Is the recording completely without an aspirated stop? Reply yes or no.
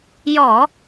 yes